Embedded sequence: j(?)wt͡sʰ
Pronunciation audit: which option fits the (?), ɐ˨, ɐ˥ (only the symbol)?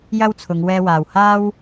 ɐ˥